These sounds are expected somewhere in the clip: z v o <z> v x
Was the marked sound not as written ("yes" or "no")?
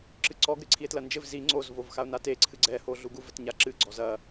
yes